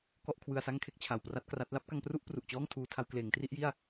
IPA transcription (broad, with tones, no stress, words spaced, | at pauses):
kɔ˥˩ʔkʰwɯ˧a̯sa˥˩ŋkʰe˥˩k̚ t͡ɕʰa˨˩wpra˥˩t̚kra˦˥t̚ la˥˩p̚ka˧ŋpru˥˩ʔ pru˨˩ʔt͡ɕɔː˥˩ŋtʰuː˧ tʰa˧wkleː˩˦ŋtri˥˩ʔji˥˩a̯